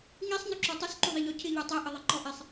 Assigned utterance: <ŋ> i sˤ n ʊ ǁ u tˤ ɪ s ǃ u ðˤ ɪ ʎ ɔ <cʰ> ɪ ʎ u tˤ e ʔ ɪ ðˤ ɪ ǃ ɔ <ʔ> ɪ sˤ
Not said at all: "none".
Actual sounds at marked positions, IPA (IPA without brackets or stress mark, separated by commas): ŋ, cʰ, ʔ